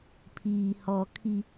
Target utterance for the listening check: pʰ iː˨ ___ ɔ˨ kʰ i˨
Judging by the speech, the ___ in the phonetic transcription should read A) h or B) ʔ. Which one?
A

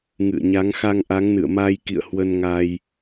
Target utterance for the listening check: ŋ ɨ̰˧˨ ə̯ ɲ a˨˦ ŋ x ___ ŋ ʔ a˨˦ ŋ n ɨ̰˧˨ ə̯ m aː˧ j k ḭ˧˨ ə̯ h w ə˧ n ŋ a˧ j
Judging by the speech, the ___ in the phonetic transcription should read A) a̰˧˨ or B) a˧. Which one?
B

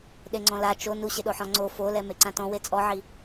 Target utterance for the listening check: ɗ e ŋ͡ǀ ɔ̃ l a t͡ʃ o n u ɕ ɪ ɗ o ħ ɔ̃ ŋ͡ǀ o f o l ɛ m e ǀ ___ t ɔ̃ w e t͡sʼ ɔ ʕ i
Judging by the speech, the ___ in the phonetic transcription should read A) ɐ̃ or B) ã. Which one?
B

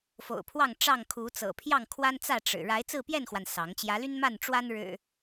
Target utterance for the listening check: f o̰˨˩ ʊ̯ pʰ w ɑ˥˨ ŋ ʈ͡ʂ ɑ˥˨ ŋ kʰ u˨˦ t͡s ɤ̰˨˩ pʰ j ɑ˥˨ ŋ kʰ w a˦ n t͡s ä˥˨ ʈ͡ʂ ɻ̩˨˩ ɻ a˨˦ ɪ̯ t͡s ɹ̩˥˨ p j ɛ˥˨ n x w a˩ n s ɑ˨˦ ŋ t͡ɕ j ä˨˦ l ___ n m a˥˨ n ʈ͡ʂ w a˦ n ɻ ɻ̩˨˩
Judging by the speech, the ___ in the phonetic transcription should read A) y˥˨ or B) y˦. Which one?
B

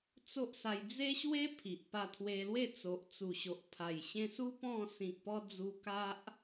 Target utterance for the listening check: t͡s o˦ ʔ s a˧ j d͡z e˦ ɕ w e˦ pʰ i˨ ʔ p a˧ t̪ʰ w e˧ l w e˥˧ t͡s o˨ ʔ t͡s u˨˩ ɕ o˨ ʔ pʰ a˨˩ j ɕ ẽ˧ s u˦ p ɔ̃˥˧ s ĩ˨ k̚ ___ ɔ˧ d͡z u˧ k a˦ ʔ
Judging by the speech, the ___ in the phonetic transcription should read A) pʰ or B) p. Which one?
B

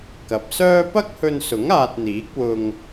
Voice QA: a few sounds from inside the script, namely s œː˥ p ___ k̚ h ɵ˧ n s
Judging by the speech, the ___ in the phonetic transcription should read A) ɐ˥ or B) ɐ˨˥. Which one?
A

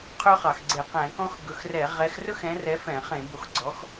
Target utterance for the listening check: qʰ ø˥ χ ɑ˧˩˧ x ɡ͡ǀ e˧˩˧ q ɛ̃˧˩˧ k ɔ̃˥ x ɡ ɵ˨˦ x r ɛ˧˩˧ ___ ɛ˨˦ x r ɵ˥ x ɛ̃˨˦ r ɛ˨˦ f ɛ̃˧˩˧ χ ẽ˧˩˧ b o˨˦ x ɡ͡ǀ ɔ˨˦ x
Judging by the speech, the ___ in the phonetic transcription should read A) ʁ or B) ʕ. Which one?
A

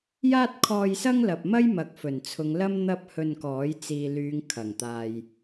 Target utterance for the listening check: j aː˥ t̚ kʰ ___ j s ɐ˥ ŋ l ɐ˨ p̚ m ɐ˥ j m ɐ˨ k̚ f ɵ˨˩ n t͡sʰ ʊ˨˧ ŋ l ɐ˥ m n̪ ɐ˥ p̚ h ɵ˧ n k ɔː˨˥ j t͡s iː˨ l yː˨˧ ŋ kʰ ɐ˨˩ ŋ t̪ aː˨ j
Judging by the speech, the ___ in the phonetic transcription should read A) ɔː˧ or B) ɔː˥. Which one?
A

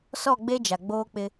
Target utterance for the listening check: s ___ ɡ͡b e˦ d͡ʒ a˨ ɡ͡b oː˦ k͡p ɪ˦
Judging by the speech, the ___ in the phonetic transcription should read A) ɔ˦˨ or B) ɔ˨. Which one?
A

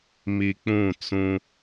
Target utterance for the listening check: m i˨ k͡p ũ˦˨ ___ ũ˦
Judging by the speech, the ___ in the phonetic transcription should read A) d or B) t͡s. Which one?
B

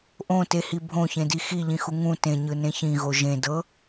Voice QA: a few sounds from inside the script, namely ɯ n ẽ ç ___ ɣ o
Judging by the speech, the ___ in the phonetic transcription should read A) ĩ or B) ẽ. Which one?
A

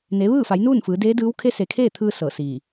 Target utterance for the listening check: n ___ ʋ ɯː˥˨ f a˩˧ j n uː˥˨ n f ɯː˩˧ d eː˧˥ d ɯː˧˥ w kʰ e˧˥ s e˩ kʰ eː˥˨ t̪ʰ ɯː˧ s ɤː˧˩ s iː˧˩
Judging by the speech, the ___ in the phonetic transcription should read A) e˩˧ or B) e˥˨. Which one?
A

